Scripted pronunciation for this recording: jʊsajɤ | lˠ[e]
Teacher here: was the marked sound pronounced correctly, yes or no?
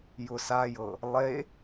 yes